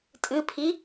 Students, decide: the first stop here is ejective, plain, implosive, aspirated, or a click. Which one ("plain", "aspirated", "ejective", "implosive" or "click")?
ejective